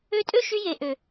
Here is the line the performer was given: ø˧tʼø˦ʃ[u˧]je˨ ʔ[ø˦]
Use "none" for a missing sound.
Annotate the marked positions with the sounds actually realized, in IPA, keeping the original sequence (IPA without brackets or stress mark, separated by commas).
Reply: y˧, ø˨